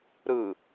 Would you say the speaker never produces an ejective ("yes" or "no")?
yes